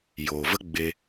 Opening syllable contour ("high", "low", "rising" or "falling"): low